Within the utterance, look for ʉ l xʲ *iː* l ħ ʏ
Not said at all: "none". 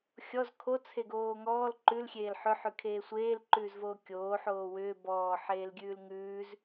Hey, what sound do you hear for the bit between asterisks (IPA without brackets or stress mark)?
eː